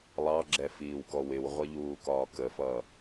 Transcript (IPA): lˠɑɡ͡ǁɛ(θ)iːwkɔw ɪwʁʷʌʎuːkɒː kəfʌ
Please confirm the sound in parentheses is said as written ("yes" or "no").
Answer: no